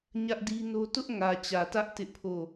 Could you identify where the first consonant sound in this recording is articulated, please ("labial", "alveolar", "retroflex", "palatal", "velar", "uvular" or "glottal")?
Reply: palatal